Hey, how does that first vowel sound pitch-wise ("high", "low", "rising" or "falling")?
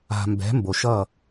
low